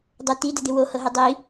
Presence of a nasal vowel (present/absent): absent